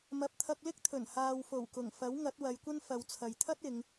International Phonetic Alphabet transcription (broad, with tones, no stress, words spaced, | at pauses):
mɐ˨p̚t̪ʰɐ˧k̚lɪ˥k̚t̪ʰɵ˨˩n haː˨wfo˨˩wkʊ˨˩ŋfɐ˨˥w ŋɐ˨˥t̚wɐ˨˧jkʷɐ˥n fɐ˨wt͡sʰɐ˨jt̪ʰɐ˥t̚ ɪ˨˧ŋ